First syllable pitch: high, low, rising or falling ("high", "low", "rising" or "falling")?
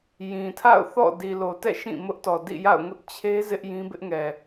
low